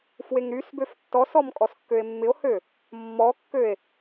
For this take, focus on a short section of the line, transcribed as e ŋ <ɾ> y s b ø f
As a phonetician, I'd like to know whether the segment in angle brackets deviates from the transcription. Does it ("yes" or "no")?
no